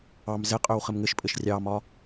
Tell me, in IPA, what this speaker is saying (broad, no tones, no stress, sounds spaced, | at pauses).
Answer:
ɑ m z ɘ qʼ ø w χ ɘ m ŋ ɘ ʃ pʼ ɘ ʃ rʲ ɑ m ɒ